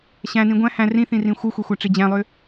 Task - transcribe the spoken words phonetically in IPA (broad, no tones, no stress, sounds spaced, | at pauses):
ɕ æ̃ n ĩ ɡʷ æ̃ h æ̃ r ĩ θ ĩ r ĩ xʷ ɯ xʷ e xʷ æ ʈ͡ʂ i d͡ʑ æ̃ lˠ ø